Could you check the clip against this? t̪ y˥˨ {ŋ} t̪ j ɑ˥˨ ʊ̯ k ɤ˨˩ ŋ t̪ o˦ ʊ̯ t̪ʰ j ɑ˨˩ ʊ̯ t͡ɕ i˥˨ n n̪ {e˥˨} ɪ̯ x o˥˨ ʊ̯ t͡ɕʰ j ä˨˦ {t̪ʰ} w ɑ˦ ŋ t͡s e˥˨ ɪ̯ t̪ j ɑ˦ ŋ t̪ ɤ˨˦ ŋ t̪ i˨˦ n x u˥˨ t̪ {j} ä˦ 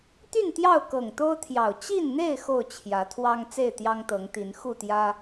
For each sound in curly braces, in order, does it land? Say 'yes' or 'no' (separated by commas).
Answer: no, yes, yes, yes